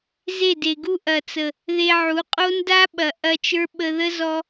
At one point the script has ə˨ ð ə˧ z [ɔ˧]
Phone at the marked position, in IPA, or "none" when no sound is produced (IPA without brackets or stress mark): ɔ˧